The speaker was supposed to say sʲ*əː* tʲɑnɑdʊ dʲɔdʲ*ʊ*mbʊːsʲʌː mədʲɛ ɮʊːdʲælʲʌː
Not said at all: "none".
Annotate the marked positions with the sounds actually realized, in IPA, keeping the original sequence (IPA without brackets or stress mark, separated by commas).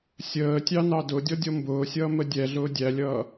əː, ɔ